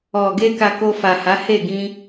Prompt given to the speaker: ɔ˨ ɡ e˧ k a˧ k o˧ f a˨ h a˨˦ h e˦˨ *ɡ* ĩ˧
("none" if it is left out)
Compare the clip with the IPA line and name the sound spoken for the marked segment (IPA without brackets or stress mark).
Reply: ɡ